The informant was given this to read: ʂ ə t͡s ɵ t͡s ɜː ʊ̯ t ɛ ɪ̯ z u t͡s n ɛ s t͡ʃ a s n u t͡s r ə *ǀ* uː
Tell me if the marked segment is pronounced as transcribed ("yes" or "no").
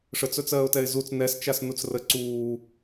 yes